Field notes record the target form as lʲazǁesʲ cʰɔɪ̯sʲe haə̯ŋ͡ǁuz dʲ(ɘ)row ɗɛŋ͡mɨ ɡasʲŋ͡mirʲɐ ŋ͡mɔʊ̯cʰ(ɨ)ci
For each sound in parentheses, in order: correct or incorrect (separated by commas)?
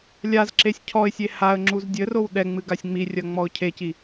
correct, incorrect